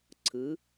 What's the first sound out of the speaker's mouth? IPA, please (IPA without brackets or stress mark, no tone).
ǀʰ